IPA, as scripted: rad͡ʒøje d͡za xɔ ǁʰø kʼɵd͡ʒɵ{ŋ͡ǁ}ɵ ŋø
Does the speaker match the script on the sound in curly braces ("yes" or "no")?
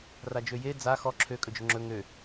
yes